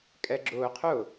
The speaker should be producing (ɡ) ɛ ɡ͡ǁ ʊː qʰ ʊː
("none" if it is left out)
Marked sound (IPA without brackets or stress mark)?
kʼ